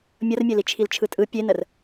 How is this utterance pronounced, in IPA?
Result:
mʲ ʌ r mʲ e l i t͡ʃʰ i l t͡ʃʰ ɯ tʼ ɯ pʲ e n ə r

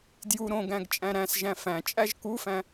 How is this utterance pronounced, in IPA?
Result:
d j u ɾ õ ɡ æ̃ ɡ t͡ʃʼ æ̃ ɾ æ̃ s ʒ æ̃ f æ̃ t͡ʃʼ æ ʒ k u f æ̃

